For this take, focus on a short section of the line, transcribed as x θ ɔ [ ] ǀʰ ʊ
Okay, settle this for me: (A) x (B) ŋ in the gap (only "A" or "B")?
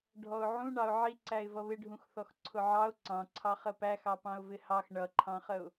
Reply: A